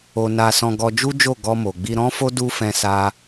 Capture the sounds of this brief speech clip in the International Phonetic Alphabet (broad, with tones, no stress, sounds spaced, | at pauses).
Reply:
o˧ n a˧ s ɔ̃˧ ɡ ɔ˧ d͡ʒ u˦ d͡ʒ o˦˨ ɡ ɔ˧ m o˨ ɡ͡b i˧ ɾ ɔ̃˦ f o˦ d u˦ f ɛ̃˧ s a˧